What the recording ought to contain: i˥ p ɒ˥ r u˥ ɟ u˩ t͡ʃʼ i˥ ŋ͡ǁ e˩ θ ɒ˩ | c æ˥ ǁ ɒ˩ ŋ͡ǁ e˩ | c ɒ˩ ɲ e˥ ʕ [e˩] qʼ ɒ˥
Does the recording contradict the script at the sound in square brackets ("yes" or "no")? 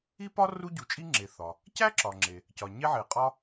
no